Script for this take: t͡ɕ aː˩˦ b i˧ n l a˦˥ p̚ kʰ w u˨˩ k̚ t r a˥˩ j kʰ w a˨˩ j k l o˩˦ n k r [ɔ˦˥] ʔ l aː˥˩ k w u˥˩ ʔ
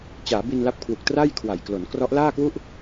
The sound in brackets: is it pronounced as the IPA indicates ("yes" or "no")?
yes